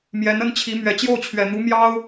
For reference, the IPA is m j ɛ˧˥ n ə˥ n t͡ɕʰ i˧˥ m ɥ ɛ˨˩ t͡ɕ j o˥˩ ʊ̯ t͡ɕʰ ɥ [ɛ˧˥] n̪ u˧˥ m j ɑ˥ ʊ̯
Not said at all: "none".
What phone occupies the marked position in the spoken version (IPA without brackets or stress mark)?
ɛ˨˩